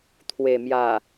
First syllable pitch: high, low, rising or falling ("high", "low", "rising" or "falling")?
low